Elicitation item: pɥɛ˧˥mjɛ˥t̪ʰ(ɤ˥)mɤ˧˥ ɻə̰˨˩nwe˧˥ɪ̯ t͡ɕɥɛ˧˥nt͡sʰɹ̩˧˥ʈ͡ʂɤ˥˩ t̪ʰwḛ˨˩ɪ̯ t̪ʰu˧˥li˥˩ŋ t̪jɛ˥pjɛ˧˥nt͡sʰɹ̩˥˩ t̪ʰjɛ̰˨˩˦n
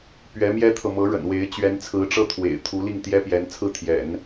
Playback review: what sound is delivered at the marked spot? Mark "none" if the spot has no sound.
ɤ˨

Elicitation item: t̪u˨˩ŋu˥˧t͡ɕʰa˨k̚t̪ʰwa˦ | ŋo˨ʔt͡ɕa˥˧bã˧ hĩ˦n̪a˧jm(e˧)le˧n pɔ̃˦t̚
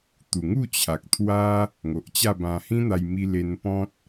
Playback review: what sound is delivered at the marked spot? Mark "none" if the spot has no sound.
i˧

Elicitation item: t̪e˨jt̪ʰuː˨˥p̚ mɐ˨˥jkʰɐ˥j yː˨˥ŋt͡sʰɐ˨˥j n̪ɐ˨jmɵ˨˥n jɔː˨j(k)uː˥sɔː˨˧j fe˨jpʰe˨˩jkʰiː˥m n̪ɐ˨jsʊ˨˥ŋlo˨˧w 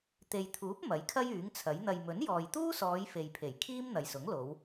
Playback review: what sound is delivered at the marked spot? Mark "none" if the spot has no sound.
t̪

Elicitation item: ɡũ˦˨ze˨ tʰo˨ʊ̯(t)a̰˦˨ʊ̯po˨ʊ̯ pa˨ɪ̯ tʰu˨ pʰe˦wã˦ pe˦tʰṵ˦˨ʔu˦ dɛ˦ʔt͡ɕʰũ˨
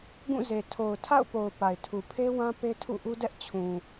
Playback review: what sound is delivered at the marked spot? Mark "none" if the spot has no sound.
tʰ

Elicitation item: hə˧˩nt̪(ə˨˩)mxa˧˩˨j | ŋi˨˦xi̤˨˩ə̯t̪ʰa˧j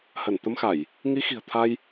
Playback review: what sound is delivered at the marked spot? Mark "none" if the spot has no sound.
ə˧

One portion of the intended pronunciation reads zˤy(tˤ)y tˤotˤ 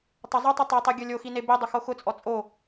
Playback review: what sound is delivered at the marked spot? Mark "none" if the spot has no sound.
tˤ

